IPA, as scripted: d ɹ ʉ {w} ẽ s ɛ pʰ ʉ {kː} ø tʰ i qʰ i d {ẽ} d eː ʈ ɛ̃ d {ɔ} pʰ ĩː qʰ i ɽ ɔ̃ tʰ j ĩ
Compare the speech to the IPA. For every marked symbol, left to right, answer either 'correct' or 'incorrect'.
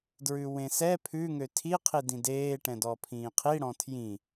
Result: correct, incorrect: ŋ, incorrect: ĩ, correct

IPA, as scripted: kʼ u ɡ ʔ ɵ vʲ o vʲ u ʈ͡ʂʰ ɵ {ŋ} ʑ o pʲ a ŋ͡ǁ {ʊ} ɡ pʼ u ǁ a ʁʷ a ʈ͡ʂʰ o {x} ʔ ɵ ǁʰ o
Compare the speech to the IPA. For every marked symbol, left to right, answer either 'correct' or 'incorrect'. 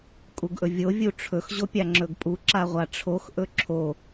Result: incorrect: x, incorrect: ɵ, correct

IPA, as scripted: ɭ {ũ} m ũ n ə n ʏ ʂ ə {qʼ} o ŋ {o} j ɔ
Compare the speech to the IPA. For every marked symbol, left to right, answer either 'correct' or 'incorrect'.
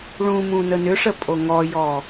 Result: correct, incorrect: pʼ, incorrect: ɔ

